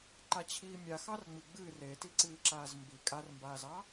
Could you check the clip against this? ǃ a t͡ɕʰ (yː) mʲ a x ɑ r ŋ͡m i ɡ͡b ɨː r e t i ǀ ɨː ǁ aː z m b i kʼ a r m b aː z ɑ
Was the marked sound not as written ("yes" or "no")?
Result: yes